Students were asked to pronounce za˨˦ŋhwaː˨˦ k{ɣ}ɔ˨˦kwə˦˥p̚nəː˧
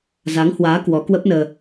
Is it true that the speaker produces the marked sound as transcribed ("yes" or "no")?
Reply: no